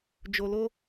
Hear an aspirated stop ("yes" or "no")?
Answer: no